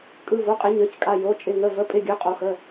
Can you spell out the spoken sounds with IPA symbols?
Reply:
kʼ ɯ˩˧˩ v o˩˧˩ qʼ ɪ˨˩˦ ɲ ə˞˩˧˩ c kʼ a˩˧˩ j o˩˧˩ t͡ʃʼ ɪ˩˧˩ ŋ ə˩˧˩ v ə˩˧˩ pʼ ɪ˩˧˩ ɡʲ ə˞˩˧˩ qʼ o˨˩˦ x ə˩˧˩

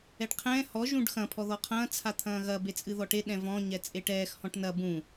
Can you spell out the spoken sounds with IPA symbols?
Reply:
ɛ ɖ qʰ ɛ̃ː h ɔ ʒ ũ ɖ x ɐ̃ pʰ ɔ ð ɔ qʰ ɐ̃ː t͡sʰ a t̪ʰ ɐ̃ː ɣ ɐ b e t͡sʼ ɨ ð ɔ ʈ e ɗ ɛ̃ v ɔ̃ ɲ ɛ t͡sʼ e ʈ ɛː x h ɔ̃ ʈ n ɐ b ũ

